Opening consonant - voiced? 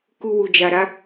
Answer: no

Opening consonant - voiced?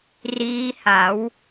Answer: yes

